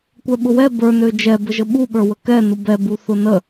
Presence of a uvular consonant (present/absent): absent